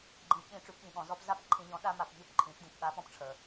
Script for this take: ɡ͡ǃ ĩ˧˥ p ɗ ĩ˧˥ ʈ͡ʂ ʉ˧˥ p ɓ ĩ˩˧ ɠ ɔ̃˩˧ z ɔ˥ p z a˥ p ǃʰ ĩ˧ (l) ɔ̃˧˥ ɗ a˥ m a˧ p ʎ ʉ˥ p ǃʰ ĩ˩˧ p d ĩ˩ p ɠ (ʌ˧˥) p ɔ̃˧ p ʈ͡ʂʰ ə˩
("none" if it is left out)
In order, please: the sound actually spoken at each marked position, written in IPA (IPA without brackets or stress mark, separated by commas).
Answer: ʎ, a˧˥